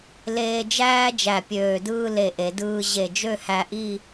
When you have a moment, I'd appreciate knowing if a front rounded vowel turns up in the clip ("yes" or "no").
yes